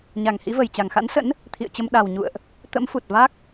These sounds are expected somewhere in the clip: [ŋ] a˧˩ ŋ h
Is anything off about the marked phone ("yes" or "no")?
yes